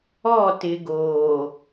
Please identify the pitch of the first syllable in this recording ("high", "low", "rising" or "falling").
falling